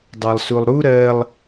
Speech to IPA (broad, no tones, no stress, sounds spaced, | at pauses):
dˤ ɑ lˠ s u lˠ ɾ u ɾ ɜ lˠ